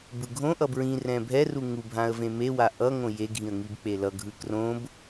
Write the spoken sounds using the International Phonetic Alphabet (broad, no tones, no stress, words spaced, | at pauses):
bɯɡʱõʔʌ bɹĩrɛ̃ bʱɛru ŋubʱãə̯ vẽmewa ʔʌŋõ jeɡʱĩə̯ ŋibk͡pelʌɡʱɯ krõb